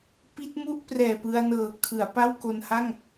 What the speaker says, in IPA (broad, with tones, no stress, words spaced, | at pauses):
pi˦˥t̚mu˥˩ʔ prɛː˨˩pɯ˧a̯nɤː˨˩ kʰɯ˩˦a̯ pa˥˩wko˧nha˥˩ŋ